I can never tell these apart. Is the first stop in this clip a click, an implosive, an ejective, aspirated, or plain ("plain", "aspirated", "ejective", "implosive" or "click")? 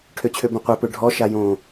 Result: aspirated